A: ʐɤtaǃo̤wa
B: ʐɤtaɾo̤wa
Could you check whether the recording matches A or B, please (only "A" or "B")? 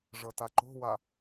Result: A